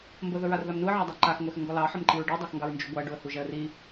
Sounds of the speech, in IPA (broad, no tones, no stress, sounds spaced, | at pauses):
m b ə ð ə ɹ a r ð a m n u ə̯ ʕ ɑ dˤ a ǃ a x ŋʷ ɛ x ə ŋ ɡ ɔ l ɑ ħ ə m ǃ i ɹ ɖ i dˤ a x ŋ ɡ ɑ ɹ n d͡ʒ u ɡʷ a ə̯ ɖ u ə̯ h u ʒ ɛ ə̯ r i